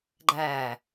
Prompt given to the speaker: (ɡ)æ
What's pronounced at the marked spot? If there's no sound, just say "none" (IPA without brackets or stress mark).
ɡ͡ǃ